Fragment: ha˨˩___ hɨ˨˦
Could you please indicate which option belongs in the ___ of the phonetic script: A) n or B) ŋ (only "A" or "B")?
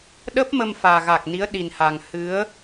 B